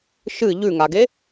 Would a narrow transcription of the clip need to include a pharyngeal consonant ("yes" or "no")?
no